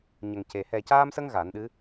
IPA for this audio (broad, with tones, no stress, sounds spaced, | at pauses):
ɲ ə˨˩ ŋ c e˨˩ h ɛ˨˩ c aː˧ m s ə˧ ŋ ɣ a˨˩˦ n ɗ ɨ˧˥